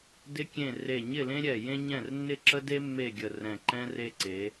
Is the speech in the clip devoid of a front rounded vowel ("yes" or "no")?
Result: yes